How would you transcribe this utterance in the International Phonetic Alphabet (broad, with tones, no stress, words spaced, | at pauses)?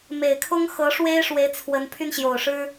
me˨˩ɪ̯ kʰʊ˥ŋ xɤ˧˥ʂwe˥ɪ̯ʂwe˧˥ɪ̯ t͡sʰwə˧˥n pʰy˥˩nɕjo˨˩ʊ̯ʂɻ̩˥